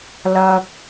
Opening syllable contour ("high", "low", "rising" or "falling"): low